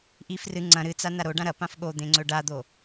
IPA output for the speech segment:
ʔ i f r ɨ ŋ͡ǀ ɐ̃ ɾ ɨ t͡s a n a ɾ o ɖ ã ɾ ɐ p ã f ɠ o d̪ ẽ ŋ͡ǀ ɵ ɖ a d̪ o

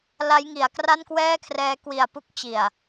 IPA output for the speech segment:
l a˦˥ j ŋ i˩˦ a̯ k r a˥˩ n k w ɛː˥˩ kʰ r ɛː˦˥ k w i˨˩ a̯ p u˦˥ k̚ t͡ɕ i˨˩ a̯

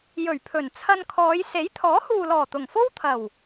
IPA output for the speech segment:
j ɵ˨˩ ɥ pʰ ɵ˨˩ n t͡sʰ ɐ˧ n kʰ ɔː˨˧ j s e˨˥ j t̪ʰ ɔː˨˥ h uː˨ l ɔː˨˩ t̪ ʊ˨˩ ŋ f o˥ w t̪ʰ ɐ˨˩ w

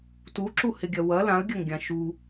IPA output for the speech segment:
t u ǁ u h ɪ ɡʲ ɐ w ɐ l ã ə̯ ɡʲ ɐ ŋ ɡʲ ã ʃ u

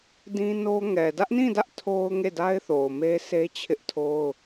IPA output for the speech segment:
d ĩ˦ n o˦ ŋ ɛ˨ d ä˦ ʔ n ĩ˦˨ d ä˦ ʔ tʰ o˦ ʊ̯ ŋ e˦˨ d a˦ ɪ̯ θ o˨ ʊ̯ m e˦ s e˦ t͡ɕʰ ɪ˦ ʔ tʰ o˦ ʊ̯

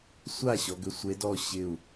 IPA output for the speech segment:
sʷ a˥˩ ɕ ɔ˧ ɡ ʏ˧˥ sʷ e˧˥ d ɔ˥˩ ɕ ɪ˥˩ u̯

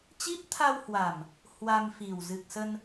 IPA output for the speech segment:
t͡ɕ i˦˥ p̚ t̪ʰ a˧ w h w a˨˩ m | h w a˧ m f i˨˩ w z ɨ˨˩ k̚ s ə˧ n

